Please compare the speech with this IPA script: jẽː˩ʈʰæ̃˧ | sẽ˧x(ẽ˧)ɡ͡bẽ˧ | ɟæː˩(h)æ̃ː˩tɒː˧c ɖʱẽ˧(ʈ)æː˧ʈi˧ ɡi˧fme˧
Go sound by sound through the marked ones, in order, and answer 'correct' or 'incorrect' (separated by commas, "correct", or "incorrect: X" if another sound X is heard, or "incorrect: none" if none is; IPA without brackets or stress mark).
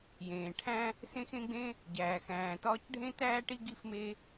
correct, incorrect: x, incorrect: t